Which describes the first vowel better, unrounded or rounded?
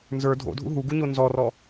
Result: unrounded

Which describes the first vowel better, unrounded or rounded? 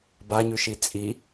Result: unrounded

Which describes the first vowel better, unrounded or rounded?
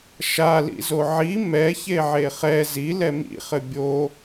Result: unrounded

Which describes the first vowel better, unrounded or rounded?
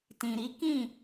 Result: unrounded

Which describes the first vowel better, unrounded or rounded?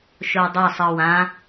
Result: rounded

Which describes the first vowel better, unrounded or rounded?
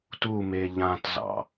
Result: rounded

